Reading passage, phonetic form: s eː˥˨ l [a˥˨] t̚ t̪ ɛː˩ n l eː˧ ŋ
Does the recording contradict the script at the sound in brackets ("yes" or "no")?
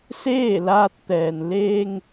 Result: yes